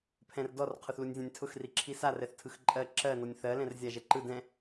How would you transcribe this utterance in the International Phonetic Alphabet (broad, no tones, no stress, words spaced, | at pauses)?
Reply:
pʰɛ̃rdɔr qʰʊθlunʲzʲɛ̃nʲtʰʊx riǁʰisa rɛθtʰɯxǃʼɜ ǁɜ nɔnʲθɜ lɛ̃rzʲaʒɛǃɯ dɛ̃